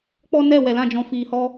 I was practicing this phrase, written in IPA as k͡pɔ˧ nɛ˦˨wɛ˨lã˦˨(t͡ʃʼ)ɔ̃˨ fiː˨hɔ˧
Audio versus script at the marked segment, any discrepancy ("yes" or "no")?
yes